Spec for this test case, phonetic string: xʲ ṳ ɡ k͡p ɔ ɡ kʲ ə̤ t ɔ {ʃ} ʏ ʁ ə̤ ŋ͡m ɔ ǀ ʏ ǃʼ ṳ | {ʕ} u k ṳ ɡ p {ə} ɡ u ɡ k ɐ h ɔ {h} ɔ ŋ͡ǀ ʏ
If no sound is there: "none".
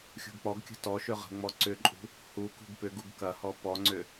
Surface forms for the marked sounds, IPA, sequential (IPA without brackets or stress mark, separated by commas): ʃ, h, ʏ, p